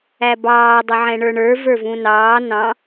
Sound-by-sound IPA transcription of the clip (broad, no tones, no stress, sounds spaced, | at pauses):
æ b ɑː dˤ ɪ ʕ ɛ̃ ɳ ə˞ ɳ ə˞ v ə˞ v ũ n ɑː n ɑ̃